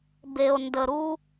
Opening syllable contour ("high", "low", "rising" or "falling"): low